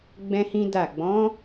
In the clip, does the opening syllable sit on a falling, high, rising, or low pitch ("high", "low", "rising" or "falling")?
high